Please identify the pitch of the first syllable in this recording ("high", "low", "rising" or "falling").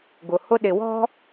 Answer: low